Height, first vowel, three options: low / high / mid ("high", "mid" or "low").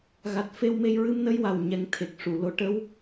low